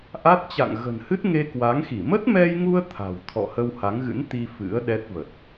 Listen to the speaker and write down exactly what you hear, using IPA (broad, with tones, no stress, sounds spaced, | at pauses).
ʔ a˦˥ t̚ t͡ɕ a̰˧˨ ŋ ɣ ə̤˨˩ n h ɨ˦˥ t̚ ŋ e˧ k w a˨˦ ŋ x i˧˩ m ə˦˥ t̚ m ɛ˧ j ŋ u˧ ə̯ t̪ʰ a̤˨˩ w t̪ʰ ɔ̰˧˨ h ə˧ w h a˨˦ ŋ ɣ ɨ̰˧˥ n t̪ i˧ f ɨ̰˧˥ ə̯ ɗ ɛ˦˥ t̚ v ə˨˩ t̚